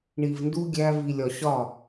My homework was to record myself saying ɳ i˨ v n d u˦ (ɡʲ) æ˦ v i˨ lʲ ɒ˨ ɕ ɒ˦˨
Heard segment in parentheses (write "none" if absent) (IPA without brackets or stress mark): ɡʲ